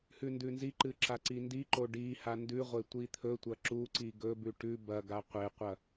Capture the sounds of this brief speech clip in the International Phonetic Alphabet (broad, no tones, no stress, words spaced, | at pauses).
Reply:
hʉndʉnziǃɨ ǁaǀindiǃo ɖi handʉʁʷe tʷit̪ʰɵtʷɐ ǁuǀi ɡɵbʉ ʈʉ bɐɡa qʷeqʷɐ